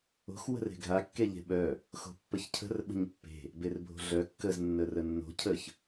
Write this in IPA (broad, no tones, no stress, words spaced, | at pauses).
o̤x wə̤re̤ɡʱa kːeʎe̤ɓœ | xo̤pːəçcʰə̤r ɓə̤ɲpːe̤ | berbʱo̤ɮœ kːəz nːərənːo̤ cʰəç